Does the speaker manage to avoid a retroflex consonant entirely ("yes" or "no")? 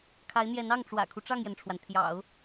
no